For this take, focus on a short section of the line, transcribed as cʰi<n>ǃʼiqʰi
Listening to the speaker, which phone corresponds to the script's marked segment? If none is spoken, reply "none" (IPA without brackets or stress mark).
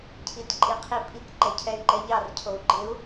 t